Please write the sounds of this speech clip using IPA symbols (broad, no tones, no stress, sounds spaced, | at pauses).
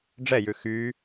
ɖ͡ʐ ɛ j ʉ x y